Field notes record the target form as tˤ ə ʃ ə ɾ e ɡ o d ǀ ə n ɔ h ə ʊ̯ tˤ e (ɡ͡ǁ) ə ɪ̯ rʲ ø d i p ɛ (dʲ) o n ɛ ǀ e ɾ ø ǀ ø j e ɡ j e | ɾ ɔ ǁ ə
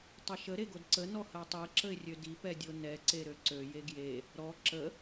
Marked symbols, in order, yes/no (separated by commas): no, yes